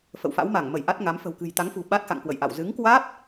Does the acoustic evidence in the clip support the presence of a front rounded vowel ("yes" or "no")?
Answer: no